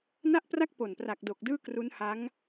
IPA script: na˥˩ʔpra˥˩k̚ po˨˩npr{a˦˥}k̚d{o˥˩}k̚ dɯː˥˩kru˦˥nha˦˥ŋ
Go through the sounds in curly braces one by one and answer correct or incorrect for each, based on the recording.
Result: incorrect: a˨˩, incorrect: o˨˩

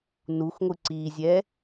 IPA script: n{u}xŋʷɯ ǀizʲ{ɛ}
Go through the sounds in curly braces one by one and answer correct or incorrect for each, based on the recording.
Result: correct, correct

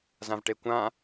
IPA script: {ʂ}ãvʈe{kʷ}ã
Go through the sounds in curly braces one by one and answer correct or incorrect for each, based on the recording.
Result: incorrect: z, correct

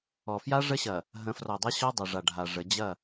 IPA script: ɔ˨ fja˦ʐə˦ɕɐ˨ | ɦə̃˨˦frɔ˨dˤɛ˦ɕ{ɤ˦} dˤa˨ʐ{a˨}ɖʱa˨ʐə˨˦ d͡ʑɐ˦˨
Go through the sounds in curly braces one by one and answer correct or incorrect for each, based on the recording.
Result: incorrect: ɔ˦, correct

